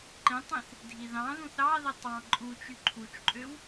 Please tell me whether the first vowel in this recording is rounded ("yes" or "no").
no